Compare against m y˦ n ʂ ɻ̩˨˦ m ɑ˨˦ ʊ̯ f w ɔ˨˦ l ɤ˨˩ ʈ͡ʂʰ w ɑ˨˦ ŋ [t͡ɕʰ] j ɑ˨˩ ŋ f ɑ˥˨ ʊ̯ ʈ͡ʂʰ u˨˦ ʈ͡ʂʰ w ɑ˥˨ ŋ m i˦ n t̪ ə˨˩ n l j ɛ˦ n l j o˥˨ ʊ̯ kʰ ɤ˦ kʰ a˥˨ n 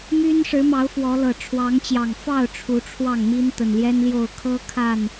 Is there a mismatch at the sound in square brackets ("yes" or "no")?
yes